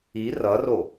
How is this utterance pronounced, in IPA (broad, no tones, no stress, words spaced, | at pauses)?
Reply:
i rʌro